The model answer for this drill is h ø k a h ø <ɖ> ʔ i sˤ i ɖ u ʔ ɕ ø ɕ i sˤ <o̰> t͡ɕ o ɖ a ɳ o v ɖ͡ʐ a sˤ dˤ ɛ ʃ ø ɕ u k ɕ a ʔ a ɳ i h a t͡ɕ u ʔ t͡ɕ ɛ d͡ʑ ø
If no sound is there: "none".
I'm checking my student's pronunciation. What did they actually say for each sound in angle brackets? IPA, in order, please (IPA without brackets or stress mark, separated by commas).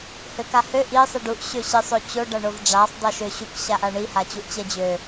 none, o